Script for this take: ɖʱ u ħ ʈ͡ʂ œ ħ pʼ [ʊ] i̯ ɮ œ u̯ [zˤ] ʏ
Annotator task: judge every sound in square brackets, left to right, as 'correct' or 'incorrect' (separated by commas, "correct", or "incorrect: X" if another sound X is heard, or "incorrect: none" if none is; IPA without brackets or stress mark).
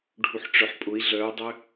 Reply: correct, incorrect: dˤ